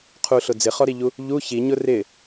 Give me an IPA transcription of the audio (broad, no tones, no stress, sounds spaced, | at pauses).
qʰ u ɬ ʊ d͡z ɪ χ ɔ ɾ i ʎ u | ʎ u ç i ɲ ʊ r ɪ